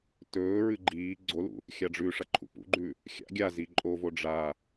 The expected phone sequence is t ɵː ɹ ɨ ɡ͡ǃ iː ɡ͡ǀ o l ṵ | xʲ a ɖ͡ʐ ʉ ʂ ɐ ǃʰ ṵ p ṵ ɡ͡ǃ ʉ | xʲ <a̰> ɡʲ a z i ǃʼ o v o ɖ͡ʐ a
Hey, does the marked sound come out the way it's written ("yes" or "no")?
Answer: yes